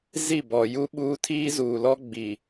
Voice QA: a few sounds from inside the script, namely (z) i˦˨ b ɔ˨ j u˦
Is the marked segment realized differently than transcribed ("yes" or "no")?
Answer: no